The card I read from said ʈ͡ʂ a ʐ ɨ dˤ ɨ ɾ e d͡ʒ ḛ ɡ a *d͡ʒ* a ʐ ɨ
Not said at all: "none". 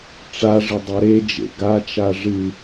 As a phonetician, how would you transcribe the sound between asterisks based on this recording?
t͡ʃ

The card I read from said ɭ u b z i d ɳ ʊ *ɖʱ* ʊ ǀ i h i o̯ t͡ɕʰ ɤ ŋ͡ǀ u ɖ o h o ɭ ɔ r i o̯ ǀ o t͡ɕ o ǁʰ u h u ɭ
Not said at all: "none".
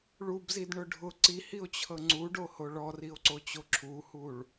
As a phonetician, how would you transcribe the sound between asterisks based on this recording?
ɖʱ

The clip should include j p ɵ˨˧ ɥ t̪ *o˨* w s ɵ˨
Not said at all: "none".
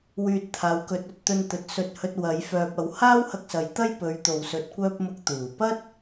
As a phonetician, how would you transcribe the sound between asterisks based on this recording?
o˨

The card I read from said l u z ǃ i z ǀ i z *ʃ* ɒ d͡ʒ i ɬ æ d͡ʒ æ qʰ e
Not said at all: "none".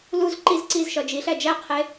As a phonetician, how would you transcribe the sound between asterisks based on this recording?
ʃ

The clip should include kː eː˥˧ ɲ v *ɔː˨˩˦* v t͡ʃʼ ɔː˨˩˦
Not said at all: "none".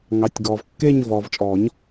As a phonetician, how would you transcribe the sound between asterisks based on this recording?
ɔː˨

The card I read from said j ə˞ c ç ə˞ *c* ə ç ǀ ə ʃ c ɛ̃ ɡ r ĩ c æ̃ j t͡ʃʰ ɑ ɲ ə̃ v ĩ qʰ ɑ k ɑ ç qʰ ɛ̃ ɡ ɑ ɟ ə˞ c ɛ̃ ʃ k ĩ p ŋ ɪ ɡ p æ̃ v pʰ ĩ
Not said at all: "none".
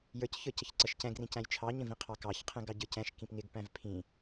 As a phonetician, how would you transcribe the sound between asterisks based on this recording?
c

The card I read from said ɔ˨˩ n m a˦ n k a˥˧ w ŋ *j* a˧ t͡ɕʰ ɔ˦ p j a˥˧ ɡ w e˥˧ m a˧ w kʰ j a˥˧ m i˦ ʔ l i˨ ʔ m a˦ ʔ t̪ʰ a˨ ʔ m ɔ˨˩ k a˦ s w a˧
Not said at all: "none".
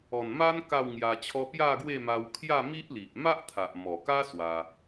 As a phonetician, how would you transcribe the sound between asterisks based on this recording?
j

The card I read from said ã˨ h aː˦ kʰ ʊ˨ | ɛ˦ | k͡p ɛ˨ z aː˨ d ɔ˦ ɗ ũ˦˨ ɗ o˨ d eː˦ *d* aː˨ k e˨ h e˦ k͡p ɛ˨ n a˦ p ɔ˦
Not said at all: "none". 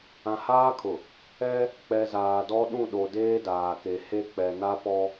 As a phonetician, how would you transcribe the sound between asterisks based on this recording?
d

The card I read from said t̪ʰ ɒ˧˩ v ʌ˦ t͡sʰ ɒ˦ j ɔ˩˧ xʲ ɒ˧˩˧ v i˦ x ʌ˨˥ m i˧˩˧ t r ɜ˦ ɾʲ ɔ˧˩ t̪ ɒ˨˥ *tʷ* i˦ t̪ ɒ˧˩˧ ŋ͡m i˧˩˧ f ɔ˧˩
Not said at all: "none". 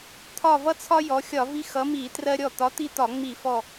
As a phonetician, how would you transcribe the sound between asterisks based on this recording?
t̪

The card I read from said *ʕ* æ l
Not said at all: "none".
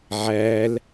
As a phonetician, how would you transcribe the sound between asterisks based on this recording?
ʕ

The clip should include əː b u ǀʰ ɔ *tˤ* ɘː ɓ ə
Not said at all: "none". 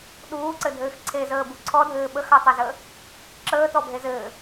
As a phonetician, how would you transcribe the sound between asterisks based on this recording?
dʱ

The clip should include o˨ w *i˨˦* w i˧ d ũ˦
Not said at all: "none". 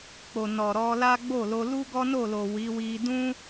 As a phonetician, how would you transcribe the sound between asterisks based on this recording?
i˨˦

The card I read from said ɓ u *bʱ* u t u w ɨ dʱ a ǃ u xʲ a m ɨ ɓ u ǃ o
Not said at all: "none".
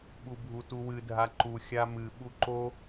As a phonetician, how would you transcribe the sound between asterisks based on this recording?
bʱ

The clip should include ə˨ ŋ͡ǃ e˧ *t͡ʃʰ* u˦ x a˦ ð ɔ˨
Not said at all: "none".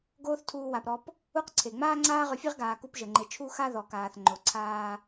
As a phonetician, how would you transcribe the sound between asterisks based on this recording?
t͡ʃʰ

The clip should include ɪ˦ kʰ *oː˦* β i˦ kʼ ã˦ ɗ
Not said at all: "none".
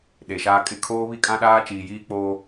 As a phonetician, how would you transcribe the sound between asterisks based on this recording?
oː˦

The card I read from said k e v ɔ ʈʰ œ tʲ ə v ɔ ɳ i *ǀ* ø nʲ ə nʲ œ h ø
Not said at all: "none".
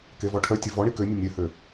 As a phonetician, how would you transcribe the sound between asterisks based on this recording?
k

